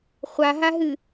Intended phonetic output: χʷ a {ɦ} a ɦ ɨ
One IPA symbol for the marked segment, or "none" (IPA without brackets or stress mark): ɦ